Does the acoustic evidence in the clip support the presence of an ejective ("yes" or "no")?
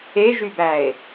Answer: no